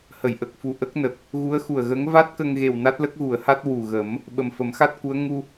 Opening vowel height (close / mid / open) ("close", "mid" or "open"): mid